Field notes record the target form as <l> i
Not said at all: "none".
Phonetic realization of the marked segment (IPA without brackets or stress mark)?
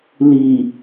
l